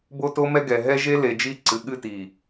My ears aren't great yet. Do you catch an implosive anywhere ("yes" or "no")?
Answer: yes